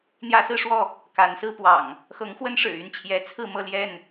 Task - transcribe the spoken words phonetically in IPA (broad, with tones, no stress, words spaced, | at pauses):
n̪jä˦sɹ̩˦ʂwɔ˥˨ | ka˨˦nsɹ̩˦pwɑ̰˨˩ŋ | xɤ˨˦ŋ xwə˦nʂɻ̩˨˩y˥˨nt͡ɕʰjɛ˨˦ t͡sʰɹ̩˥˨mɤ˥˨ljɛ˥˨n